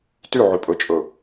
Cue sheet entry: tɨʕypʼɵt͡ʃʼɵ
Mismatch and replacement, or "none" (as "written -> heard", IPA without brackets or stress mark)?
ɨ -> y